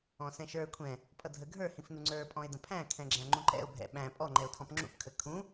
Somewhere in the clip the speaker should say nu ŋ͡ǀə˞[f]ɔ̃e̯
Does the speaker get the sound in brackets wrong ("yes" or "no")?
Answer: yes